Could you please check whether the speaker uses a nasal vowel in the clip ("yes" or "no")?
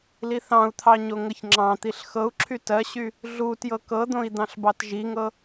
yes